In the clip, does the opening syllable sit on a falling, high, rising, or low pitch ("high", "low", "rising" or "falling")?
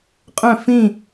falling